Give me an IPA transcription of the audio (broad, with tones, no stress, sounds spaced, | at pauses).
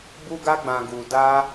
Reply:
b u˦ ɡ a˦ ɡ͡b ã˧ ɡ u˧ d a˦